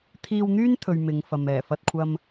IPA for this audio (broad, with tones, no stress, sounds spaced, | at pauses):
t̪ʰ iː˧ w n̪ yː˥ n t̪ʰ ɵ˧ ɥ m ɪ˨˧ ŋ f ɐ˨ m ɛː˨˩ f ɐ˨ t̚ kʷʰ ɐ˧ m